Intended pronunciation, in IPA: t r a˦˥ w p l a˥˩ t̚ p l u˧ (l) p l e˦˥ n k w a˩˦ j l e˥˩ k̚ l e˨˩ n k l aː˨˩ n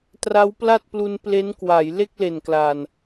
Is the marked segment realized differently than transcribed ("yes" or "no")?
yes